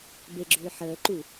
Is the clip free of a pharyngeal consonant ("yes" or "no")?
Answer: no